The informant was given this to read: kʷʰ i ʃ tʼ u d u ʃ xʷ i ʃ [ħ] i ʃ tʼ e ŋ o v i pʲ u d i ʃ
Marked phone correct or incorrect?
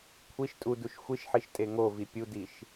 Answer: correct